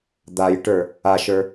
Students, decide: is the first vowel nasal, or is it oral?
oral